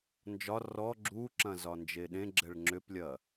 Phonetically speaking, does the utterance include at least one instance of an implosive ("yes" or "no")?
yes